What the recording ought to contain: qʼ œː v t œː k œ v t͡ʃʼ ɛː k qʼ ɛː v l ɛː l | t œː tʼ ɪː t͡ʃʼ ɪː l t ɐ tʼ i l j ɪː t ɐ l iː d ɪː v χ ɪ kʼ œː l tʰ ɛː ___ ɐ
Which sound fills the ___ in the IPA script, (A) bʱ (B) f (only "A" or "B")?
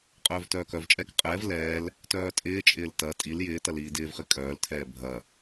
A